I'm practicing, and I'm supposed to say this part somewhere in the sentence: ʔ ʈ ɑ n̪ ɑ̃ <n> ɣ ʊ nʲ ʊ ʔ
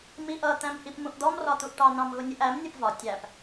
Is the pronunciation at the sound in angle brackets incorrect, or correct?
incorrect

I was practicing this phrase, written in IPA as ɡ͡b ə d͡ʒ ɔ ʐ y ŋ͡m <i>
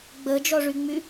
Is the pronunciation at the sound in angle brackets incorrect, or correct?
incorrect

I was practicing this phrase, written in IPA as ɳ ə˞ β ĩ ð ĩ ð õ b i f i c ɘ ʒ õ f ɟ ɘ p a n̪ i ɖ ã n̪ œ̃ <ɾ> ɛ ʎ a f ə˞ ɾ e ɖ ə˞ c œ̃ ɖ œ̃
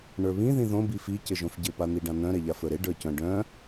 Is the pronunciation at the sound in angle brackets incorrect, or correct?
correct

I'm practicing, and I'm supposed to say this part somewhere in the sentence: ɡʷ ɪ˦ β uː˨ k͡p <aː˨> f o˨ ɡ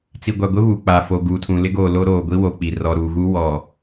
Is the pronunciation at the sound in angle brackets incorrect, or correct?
correct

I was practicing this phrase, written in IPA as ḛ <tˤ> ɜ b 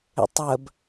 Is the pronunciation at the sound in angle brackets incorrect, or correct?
correct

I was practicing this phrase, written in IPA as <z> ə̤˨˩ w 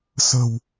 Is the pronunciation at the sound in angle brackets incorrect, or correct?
incorrect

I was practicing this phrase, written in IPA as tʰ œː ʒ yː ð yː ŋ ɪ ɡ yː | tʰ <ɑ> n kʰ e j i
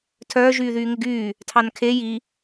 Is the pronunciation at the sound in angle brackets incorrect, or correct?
correct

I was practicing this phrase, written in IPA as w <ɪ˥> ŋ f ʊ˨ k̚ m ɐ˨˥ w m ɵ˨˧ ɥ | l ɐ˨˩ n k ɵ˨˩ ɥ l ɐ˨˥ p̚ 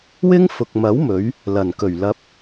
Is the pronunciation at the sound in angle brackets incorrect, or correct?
correct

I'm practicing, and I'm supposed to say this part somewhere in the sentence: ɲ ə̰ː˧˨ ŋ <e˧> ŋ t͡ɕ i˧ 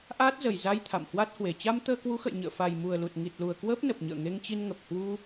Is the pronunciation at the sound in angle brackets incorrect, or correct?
correct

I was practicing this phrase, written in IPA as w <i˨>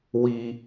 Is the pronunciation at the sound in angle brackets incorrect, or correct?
correct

